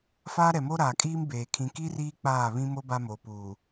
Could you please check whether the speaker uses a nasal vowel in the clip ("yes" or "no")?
yes